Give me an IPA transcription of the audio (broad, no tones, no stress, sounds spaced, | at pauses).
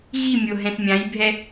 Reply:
ɣ i mʲ o ɦ ɛ̃ s mʲ ã j bʱ ɛ